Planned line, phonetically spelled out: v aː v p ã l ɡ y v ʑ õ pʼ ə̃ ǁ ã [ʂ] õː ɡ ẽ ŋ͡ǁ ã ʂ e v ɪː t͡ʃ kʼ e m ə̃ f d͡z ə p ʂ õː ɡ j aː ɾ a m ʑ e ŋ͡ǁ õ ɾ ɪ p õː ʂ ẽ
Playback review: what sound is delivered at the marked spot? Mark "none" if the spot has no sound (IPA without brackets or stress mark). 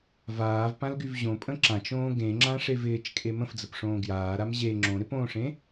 t͡ʃ